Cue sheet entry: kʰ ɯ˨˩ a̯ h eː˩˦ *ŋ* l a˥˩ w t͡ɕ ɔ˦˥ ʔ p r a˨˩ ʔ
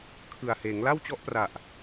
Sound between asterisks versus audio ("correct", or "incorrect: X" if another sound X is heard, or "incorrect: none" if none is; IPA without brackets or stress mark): correct